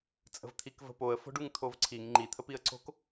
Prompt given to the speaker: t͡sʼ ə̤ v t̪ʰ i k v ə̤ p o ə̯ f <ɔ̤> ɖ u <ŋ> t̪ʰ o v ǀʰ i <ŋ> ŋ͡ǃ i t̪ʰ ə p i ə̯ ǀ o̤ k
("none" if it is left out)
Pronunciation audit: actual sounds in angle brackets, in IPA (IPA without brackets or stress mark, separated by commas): o̤, ŋ, ŋ